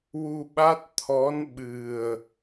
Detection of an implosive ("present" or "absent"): present